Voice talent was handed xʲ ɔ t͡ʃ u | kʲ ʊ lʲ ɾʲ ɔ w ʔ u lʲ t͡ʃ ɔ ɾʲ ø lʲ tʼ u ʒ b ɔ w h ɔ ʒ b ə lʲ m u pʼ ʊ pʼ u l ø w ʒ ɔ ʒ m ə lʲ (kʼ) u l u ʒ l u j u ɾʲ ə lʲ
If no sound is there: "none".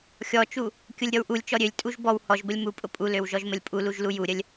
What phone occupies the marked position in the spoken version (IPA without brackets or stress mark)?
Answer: pʼ